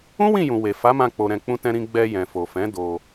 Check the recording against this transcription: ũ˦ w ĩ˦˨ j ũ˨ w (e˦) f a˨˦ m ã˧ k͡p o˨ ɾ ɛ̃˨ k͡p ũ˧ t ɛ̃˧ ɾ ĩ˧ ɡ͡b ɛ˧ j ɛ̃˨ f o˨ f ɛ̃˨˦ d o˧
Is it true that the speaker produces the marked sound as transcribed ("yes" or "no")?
no